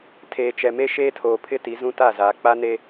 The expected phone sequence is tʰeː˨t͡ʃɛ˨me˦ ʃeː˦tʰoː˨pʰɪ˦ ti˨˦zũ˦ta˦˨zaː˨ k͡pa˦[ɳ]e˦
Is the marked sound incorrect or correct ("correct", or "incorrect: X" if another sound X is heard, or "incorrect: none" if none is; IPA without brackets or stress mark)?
incorrect: n